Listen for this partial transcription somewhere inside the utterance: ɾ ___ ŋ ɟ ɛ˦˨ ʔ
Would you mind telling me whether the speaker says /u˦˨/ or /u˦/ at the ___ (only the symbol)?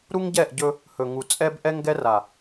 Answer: u˦